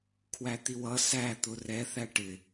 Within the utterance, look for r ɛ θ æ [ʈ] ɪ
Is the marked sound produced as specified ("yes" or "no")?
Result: yes